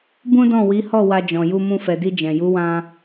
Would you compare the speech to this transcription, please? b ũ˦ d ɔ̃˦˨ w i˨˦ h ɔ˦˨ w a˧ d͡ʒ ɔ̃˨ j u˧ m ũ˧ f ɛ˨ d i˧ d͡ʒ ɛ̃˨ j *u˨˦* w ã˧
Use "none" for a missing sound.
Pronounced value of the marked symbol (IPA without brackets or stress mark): u˨˦